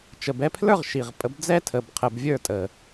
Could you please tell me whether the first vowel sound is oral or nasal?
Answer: oral